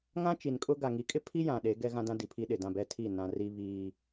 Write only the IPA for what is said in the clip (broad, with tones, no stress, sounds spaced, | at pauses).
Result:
ŋ ã˦ t͡ʃ i˨ n kʼ ʊ˦ ɡ a˨ ŋ i˨˦ kʼ ɪ˦ pʰ i˦ j ã˨ ɗ e˨˦ ɡ ɛ˦ ɣ ã˦ d ã˦ d i˨ pʰ iː˦ ɗ ɪ˨ d ã˦˨ b ɛ˦ tʰ iː˦˨ n ã˨ r i˨ β iː˨